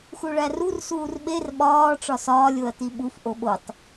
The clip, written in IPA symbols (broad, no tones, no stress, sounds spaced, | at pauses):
x u ɭ æ r u r s uː r ɓ e r ɓ ɒː ʈ͡ʂ ɒ s ɒː lʲ o ɐ̯ t i ɓ u f ʔ o ɓ o tˤ